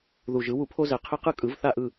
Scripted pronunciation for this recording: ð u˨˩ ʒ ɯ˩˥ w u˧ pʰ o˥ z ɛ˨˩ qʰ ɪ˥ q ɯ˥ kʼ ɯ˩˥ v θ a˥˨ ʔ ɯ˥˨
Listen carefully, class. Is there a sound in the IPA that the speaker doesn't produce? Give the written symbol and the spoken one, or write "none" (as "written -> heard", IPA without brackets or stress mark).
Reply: none